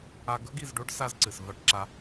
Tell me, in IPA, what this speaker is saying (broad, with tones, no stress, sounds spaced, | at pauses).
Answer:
a˦ ɡ ɵ˦ ɡ i˨ z ɖ o˦ ɖ s a˥ z ǀ ɨ˩ s v a˦ ʈ ǁ a˦